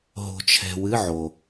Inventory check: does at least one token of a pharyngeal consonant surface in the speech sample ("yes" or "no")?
yes